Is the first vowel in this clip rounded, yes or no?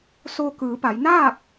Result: yes